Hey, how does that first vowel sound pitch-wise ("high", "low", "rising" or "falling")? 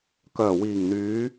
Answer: low